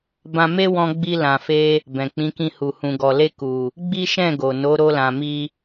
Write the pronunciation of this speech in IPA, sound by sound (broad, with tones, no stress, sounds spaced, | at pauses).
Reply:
b ã˧ m e˦ w ɔ̃˧ ɡ͡b i˧ l ã˨ f e˧ | b ɛ̃˨ k͡p ĩ˨˦ k ĩ˧ h u˨ h ũ˨ ɡ ɔ˨ l e˧ k u˨ | ɡ͡b i˦ ʃ ɛ̃˦˨ ɡ o˨ n o˨˦ ɾ o˧ l ã˨ m i˧